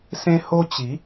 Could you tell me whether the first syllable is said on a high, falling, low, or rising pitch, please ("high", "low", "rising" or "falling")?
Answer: high